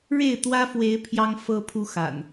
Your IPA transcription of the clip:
ɻ e˥˨ ɪ̯ t̪ w ä˦ f w e˨˦ ɪ̯ pʰ j ɑ˦ ŋ f ɤ˦ pʰ u˦ x a̰˨˩ n

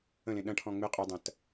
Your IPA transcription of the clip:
ə̃ l ẽ ɗ ɐ̃ ʈʰ ɔ̃ ŋ͡m ɪ qʼ ɪ dˤ ɐ̃ t

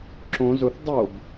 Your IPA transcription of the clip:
ǁ õ z ʊ θ dˤ o b

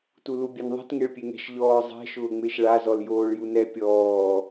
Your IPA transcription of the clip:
t u l u bʲ ɛ n ðˤ ɛ̤ t ŋ e ɭ pʲ e ŋ ɛ̤ ʃ ʎ ɔː zˤ ɛ̤ ʃ ʊː ŋ͡m e ʃ ɭ a z ɔ l j oː ɭ j u n ɛ pʲ ɔː

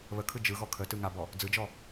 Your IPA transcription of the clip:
β ə kʰ ɯ d͡ʒ ɯ ɣ ɔ kʰ ə t ɯ ŋ a b ɔ | d͡z ɯ d͡ʒ ɔ

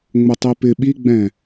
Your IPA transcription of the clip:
ŋ͡m ʊ tˤ i p ɪ ɓ i ɡ͡b ɛ̃

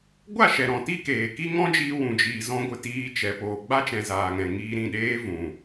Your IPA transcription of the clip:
ɡʷ a˦˨ ʃ ɛ˨ ɾ ɔ̃˨ t i˦ k eː˨ k i˦ ŋ ɔ̃˦ d͡ʒ iː˧ w ũ˨ d͡ʒ iː˨ z ɔ̃˧ ɡʷ ɨ˨ t iː˧ t͡ʃ ɛ˨ p oː˨ ɡ͡b a˦ t͡ʃ ɛ̃˨ z aː˨ ŋ ɛ̃˨ ŋ iː˧ ɾ ĩ˦˨ ɗ eː˦ v ũ˨

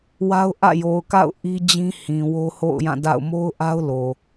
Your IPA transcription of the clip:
w a˦ ʊ̯ ʔ ä̰˦˨ j o˨ ʊ̯ k a̰˦˨ ʊ̯ ʔ i˦ d͡ʑ ĩ˦ h ĩ˨ w o˦ h o̰˦˨ ʊ̯ j ã˦˨ d a̰˦˨ ʊ̯ m o˦ ʊ̯ ʔ a˦ ʊ̯ l o˨

